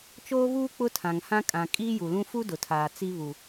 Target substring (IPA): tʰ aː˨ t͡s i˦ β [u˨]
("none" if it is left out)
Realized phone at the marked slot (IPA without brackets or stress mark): u˨